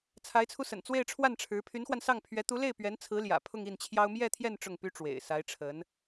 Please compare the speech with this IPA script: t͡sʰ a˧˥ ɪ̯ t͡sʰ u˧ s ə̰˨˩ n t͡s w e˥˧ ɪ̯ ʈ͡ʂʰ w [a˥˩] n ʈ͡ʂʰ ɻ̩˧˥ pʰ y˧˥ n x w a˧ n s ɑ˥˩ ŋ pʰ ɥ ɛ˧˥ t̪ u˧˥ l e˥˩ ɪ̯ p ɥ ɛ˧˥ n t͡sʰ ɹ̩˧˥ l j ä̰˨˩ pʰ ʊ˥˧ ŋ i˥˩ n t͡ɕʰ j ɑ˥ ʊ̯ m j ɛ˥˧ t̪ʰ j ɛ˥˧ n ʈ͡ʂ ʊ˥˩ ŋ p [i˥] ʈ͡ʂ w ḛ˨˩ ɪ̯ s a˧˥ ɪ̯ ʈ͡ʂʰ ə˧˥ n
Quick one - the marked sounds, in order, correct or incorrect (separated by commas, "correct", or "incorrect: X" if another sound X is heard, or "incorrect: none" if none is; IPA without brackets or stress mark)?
correct, incorrect: y˥